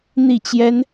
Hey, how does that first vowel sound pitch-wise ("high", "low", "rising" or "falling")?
falling